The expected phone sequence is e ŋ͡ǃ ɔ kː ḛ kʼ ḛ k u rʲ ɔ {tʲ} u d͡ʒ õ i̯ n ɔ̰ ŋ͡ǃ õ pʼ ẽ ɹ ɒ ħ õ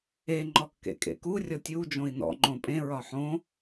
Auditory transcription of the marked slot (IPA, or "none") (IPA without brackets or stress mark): tʲ